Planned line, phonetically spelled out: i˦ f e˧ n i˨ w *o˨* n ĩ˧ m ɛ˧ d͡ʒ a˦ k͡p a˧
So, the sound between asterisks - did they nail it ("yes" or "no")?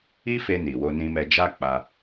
no